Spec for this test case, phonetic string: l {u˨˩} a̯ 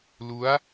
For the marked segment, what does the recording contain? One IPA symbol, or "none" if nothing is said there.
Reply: u˦˥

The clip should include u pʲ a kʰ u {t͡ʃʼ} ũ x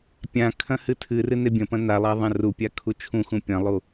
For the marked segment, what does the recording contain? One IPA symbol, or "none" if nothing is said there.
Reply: t͡ʃʰ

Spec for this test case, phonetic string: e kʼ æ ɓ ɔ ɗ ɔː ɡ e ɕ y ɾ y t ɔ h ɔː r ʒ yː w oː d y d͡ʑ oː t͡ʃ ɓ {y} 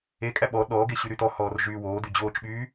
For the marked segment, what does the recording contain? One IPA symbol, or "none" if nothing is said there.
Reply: yː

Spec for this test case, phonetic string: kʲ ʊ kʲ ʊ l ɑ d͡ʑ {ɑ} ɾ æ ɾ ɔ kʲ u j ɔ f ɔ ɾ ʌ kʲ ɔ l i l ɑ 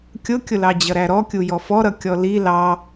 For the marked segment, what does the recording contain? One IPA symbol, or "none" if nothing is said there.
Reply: ʌ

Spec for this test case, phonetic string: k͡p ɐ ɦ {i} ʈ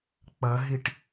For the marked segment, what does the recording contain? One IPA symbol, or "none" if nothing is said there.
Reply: i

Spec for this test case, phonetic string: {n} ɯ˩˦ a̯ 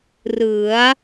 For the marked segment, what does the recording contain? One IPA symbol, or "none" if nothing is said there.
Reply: r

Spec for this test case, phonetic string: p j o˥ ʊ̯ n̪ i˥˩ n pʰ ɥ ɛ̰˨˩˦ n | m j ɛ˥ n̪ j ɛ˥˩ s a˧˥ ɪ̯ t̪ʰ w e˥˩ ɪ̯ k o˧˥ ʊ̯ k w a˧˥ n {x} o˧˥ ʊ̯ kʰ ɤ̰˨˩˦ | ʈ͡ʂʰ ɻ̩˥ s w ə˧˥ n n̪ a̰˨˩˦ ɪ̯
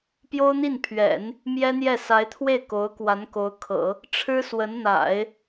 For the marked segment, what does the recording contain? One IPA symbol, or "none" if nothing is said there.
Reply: k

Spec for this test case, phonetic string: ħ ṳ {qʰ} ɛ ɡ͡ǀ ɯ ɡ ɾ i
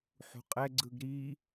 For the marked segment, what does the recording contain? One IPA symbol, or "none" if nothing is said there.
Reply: qʼ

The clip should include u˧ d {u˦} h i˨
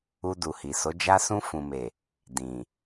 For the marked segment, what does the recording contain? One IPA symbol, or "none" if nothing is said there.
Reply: u˨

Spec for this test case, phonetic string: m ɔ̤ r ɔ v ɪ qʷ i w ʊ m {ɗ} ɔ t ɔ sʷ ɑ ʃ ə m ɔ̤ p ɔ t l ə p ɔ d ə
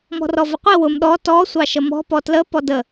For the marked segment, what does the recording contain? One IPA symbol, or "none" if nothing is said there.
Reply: ɗ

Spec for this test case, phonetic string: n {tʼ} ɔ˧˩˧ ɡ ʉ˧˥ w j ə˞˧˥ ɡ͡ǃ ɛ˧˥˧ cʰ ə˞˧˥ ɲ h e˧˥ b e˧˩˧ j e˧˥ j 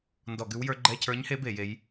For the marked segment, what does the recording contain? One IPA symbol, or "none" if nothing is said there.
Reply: d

